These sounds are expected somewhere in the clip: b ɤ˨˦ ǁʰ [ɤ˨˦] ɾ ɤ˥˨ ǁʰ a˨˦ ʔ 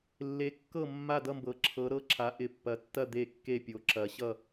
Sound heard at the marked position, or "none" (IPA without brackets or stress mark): ɤ˨˦